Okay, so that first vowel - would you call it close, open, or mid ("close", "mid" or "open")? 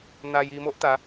open